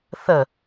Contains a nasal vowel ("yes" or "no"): no